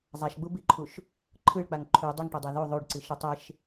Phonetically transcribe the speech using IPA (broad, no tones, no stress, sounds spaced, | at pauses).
zˤ a ʃ ɡ͡b u b i ǃʰ u ʃ | ǃʰ ɯ ɭ k͡p a ŋ ǃʰ u dˤ i ŋ ʈ o dˤ a ð u ðˤ u ɖ ǀ i ʃ ɯ tˤ e ʃ